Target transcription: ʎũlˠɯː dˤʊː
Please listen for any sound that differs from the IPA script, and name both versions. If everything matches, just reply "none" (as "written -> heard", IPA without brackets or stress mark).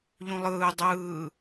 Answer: ʊː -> ɯː